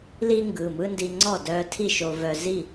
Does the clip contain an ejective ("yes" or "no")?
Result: no